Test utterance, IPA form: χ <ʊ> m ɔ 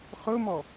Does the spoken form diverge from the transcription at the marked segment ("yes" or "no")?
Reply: no